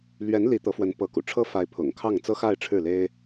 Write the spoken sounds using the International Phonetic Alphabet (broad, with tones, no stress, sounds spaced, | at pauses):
l ɥ ɛ˧˥ n l i˧˥ t̪ ɤ˧˥ f w ə˧˥ n p ɤ˧˥ k ṵ˨˩ ʈ͡ʂʰ ɤ˥ f a˧˥ ɪ̯ pʰ ʊ̰˨˩ ŋ kʰ ɑ˥˩ ŋ t͡s ɤ˥ x a˥˧ ɪ̯ ʈ͡ʂʰ ɻ̩˥˩ l e˥ ɪ̯